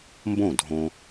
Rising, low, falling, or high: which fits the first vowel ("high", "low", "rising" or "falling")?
falling